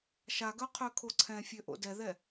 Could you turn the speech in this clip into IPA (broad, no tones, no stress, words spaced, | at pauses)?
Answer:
ʃaɡœqʰøkʰo ǀʰɛ̃fʲøʔo̰ dɛðɛ